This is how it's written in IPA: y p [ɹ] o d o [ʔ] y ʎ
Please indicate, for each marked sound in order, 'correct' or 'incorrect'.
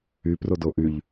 incorrect: r, correct

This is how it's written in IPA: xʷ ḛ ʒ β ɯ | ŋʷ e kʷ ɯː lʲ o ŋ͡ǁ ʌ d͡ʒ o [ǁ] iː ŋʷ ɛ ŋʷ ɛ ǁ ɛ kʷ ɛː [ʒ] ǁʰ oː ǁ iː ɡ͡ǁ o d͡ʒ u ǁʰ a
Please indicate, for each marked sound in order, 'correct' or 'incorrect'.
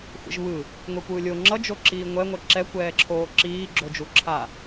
correct, incorrect: none

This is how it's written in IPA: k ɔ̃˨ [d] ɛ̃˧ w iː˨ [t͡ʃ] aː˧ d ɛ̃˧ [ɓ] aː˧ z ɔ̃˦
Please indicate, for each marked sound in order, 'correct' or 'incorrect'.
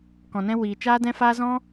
incorrect: n, correct, incorrect: f

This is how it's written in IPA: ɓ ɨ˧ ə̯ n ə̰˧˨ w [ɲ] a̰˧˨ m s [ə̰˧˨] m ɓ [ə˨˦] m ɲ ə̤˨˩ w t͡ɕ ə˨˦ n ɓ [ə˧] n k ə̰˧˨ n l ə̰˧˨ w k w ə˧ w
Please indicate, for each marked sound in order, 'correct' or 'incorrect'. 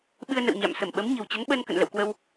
correct, incorrect: ə˧˩, correct, correct

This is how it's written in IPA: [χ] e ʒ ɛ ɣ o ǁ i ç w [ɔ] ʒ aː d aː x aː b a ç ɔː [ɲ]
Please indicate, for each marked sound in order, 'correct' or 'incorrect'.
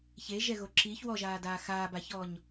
incorrect: ç, correct, correct

